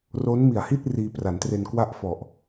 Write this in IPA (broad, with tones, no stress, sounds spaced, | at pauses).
r o˦˥ n m i˨˩ a̯ h i˥˩ t̚ r iː˧ p r a˩˦ n t r e˧ n k w a˥˩ ʔ f ɔ˨˩ ʔ